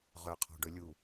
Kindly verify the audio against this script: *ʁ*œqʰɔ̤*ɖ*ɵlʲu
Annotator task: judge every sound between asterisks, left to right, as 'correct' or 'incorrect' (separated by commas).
correct, correct